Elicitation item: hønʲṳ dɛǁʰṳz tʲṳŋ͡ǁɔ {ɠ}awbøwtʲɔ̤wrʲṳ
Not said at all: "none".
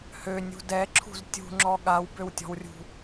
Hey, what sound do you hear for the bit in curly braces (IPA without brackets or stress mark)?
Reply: ɠ